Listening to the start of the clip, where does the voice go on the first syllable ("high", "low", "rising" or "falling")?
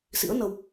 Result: rising